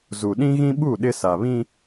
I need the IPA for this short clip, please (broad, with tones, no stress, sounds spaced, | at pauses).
z u˨ ɗ ĩ˦ ɣ ĩ˦ ɓ u˦˨ ɗ ɪ˦ s a˨ β ĩ˦